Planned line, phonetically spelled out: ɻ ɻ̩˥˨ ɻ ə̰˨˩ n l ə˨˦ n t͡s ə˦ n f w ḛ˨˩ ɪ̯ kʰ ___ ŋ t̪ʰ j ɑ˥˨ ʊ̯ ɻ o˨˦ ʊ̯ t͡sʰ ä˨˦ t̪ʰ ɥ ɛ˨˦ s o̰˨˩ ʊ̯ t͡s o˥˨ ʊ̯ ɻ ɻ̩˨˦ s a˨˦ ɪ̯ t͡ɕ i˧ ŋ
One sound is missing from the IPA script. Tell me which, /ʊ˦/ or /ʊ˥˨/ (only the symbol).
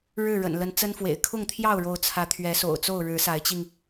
ʊ˥˨